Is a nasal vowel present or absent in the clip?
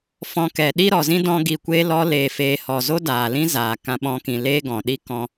present